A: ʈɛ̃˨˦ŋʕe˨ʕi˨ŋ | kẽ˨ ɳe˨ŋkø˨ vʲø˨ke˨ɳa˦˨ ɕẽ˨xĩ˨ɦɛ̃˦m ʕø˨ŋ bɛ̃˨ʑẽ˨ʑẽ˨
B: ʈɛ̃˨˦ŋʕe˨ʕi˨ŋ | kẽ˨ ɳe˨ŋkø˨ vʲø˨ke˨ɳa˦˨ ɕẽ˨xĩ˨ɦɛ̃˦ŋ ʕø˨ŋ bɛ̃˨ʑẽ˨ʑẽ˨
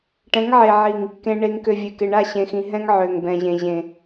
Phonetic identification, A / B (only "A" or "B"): B